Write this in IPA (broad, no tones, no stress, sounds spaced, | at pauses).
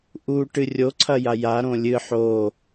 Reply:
ʔ u ʈ ɨ rʲ o ǀʰ ɐ j a j a ɾ õ lʲ ɨ ħ o